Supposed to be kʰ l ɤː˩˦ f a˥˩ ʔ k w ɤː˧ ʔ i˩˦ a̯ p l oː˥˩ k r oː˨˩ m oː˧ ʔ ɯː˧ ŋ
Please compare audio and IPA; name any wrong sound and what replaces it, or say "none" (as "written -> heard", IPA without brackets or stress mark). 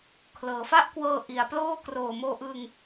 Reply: ɯː˧ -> ɯ˧